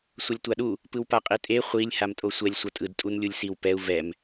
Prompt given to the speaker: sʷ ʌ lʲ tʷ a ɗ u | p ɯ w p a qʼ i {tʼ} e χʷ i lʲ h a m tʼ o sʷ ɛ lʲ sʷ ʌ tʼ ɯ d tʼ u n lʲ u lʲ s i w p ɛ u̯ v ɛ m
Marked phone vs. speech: correct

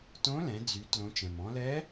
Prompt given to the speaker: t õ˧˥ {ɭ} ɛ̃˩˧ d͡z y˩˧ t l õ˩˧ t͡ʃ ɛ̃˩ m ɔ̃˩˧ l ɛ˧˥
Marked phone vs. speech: incorrect: l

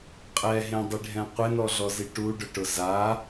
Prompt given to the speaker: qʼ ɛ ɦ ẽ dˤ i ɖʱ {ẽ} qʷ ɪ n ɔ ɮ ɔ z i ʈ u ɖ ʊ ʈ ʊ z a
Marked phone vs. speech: incorrect: ɛ̃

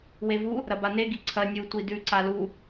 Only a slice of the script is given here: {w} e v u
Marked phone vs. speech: correct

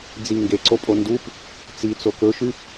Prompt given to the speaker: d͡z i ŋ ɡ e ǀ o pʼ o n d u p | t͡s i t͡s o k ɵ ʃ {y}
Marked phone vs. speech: correct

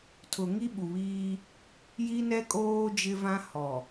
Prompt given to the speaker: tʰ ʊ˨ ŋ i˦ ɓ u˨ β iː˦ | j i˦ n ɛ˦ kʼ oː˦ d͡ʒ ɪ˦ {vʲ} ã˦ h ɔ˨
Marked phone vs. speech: incorrect: v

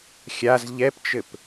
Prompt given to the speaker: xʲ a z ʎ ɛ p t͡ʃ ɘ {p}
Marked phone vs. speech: correct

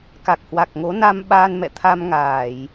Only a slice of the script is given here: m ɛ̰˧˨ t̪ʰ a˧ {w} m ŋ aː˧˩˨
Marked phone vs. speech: incorrect: none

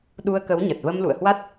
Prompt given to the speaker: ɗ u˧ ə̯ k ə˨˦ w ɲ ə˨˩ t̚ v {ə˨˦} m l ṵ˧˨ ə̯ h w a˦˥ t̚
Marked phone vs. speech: incorrect: ə˧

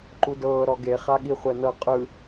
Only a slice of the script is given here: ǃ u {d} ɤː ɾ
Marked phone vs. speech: correct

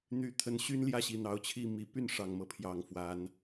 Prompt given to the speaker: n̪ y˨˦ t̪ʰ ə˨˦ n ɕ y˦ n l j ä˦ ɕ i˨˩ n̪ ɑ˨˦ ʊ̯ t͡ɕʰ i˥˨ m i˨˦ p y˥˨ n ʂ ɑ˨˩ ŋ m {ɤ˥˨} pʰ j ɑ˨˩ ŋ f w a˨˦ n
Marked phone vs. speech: incorrect: ɤ˦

